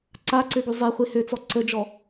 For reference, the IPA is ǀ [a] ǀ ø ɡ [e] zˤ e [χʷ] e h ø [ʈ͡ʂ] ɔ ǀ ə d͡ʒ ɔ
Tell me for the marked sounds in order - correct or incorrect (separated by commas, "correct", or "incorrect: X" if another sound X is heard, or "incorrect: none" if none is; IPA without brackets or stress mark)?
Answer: correct, incorrect: y, correct, incorrect: t͡s